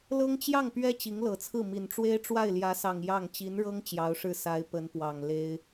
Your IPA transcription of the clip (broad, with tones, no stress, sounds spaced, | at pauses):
l ɤ˥ ŋ t͡ɕ j ɑ˥˩ ŋ p ɥ ɛ˥ t͡ɕ i˧˥ ŋ l ɤ˨˩ t͡sʰ ɹ̩˥˩ m i˨˩ n ʈ͡ʂ w e˥ ɪ̯ ʈ͡ʂ w a˥˩ ɪ̯ l j ä˧˥ s ɑ˨˩ ŋ j ɑ˥˩ ŋ t͡ɕ i˧˥ n ɻ ɤ˥ ŋ t͡ɕ j ɑ˧˥ ʊ̯ ʂ ɻ̩˥˩ s a˧˥ ɪ̯ p ə˧˥ n p w ɑ˨˩ ŋ l e˥ ɪ̯